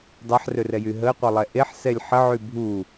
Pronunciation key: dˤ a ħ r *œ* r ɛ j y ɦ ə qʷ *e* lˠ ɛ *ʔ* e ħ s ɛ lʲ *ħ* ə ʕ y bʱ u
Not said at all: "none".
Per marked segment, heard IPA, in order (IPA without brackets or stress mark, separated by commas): ø, ɛ, ʔ, ħ